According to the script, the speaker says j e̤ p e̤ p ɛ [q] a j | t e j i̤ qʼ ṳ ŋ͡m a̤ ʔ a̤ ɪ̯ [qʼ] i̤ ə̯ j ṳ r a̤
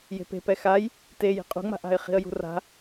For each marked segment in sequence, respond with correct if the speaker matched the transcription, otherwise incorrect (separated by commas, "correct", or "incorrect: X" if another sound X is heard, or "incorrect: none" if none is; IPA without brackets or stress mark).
incorrect: x, incorrect: χ